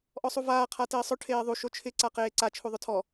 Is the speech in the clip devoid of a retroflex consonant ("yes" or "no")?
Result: no